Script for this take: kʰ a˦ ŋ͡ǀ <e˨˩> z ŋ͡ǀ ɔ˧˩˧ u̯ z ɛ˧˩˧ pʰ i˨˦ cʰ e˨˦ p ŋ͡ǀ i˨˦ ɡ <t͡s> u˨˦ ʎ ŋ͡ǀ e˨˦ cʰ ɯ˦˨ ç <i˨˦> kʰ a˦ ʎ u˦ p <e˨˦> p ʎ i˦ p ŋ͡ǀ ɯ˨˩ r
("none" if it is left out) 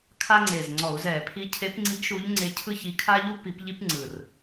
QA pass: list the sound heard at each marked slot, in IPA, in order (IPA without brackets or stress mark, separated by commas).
e˨˩, ʃ, i˨˦, i˨˦